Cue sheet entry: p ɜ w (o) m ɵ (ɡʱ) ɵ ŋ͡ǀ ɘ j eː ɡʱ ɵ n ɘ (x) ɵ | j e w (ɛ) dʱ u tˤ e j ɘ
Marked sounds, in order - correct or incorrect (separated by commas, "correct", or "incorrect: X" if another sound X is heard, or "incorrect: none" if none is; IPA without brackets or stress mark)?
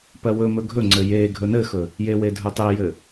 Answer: incorrect: ɵ, correct, correct, incorrect: e